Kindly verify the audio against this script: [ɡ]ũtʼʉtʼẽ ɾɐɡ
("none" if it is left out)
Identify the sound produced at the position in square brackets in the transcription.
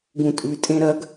ɡ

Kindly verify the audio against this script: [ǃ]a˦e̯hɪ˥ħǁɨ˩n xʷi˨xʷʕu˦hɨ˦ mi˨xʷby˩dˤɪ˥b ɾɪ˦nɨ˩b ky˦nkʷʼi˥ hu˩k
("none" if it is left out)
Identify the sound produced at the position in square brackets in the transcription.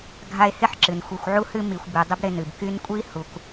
ɡʱ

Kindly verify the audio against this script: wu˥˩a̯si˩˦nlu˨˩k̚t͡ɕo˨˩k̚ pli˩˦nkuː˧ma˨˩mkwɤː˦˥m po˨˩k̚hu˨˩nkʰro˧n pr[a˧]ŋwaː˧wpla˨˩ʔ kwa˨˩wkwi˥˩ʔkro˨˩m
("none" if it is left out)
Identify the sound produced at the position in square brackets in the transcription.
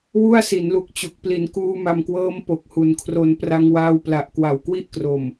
a˧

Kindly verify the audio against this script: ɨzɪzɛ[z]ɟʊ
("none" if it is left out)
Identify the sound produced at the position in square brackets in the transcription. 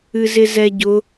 none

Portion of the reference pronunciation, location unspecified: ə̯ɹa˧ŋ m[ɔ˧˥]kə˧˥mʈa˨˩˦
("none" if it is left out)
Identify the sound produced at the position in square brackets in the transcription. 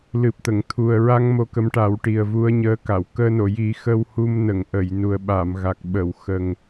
o˧˥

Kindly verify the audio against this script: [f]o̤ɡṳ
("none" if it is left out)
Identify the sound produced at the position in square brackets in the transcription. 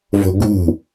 v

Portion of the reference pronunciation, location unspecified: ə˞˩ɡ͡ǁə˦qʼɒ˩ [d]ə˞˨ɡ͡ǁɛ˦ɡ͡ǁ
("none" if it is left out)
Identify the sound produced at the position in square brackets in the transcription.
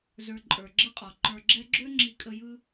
ǃ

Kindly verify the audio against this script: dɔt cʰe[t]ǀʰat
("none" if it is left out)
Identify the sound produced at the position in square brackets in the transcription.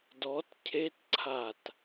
t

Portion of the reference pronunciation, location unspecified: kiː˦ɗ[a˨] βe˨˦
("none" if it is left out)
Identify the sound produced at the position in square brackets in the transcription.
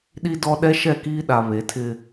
a˨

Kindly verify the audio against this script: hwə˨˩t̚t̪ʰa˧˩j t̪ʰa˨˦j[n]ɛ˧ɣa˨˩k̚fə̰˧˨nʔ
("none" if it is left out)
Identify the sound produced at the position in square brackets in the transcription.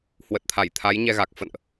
ɲ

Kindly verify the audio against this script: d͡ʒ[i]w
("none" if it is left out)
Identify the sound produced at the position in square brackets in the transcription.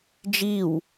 i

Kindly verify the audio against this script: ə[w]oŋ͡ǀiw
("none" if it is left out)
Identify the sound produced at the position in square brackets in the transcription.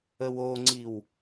w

